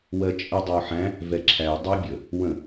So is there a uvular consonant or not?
no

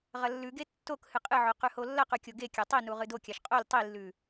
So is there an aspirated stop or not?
no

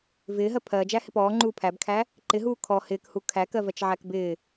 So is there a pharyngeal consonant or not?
yes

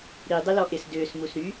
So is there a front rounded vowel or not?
yes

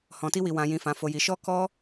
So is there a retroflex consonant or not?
no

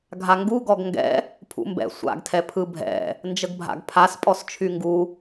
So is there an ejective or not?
yes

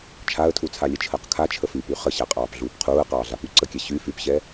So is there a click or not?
yes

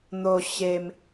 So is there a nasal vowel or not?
no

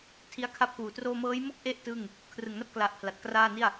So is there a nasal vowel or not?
no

